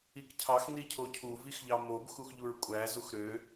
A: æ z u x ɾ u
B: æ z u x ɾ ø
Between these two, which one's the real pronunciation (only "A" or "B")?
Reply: B